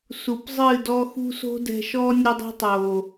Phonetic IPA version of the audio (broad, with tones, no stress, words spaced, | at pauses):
su˨pzˤɨː˦˨dɔ˧ xṳ˦so̤˦dɛ̤˧ʃɔː˦ nʲɨ˧dˤo̤˦tˤoː˨